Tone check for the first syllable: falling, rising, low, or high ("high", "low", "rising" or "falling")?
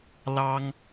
high